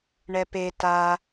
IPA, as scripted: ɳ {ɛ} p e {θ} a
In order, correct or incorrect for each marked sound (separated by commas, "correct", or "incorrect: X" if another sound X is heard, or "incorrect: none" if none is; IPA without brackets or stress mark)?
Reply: correct, incorrect: t